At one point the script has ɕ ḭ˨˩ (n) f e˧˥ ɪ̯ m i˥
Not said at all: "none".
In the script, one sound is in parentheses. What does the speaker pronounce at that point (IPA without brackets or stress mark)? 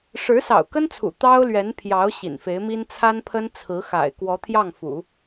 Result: n